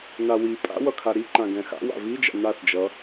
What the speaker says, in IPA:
nawipʼa̰ wʌkʰaɾiǃã ɡɛ̃xa̰wa̰ vid͡ʒa̰ naθd͡ʒʌ

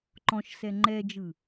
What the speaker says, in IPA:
ǃɔ̃ʃsɛ ŋ͡ǃɛd͡ʒɯ

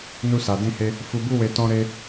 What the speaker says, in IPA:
nu˧sa˨dĩ˧he˧ | fu˨bu˧we˨ tɔ̃˧ɾe˧

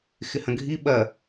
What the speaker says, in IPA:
xɪhɐ̃ɡʱi ɓɐ

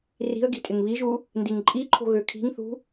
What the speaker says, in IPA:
ri̤ə̯ɡi̤ tʼɪŋβiʒu | ndiŋǃʼiǃʰo̤ ɣøkʰi̤ŋθṳ

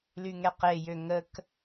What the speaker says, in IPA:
lyŋɛqejø ŋək

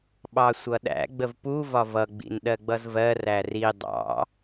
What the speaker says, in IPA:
ɓɑsʷʌɗæ̰ ɡ͡bəvpu vɒvʌ ɡ͡bḭnɗɜɡ͡bʌzvɜ ræri dˤɑ̰

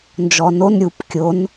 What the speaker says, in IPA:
nd͡ʒɔnon ɾʲup kʲon

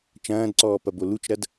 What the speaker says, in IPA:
t͡ʃɐ̃ːdǀɔː pɐbolut͡ʃɾɐd

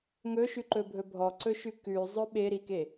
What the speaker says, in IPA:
ŋɵʃʉǃɵbʱɵ bʱɔǀɵʃʉ kʉzˤɵ ɓeɾike

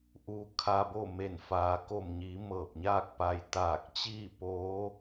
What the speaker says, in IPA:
ʔuː˧kʰaː˧bo˥˨ me˧˩nfaː˩˧ko˧˩mɲiː˩˧ mɤː˧˩p̚ɲaː˥˨k̚ pa˩j t̪aː˧˩k̚t͡ɕiː˥˨poː˧˥

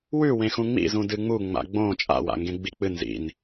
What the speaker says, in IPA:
wʉwẽ xũŋ͡mḭzũ dɨŋ͡mu ŋ͡ma̰ɡ͡bõ t͡ʃʼa̰wa̰ŋɡẽ ɡ͡bik͡pɨn zḭn

